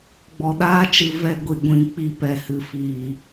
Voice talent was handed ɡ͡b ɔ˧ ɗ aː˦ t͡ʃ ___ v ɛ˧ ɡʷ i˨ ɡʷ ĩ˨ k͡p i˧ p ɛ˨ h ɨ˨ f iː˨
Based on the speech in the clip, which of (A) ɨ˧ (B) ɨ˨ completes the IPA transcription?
A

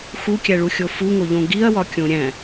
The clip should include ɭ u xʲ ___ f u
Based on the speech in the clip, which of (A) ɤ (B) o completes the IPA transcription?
B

